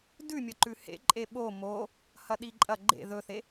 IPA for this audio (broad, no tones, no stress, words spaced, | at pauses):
dʉmʲɐǃʉ hḛ ǃʼeɓo mo | hɐɗiǃʼɐ ɡ͡ǃḛ ðɵθe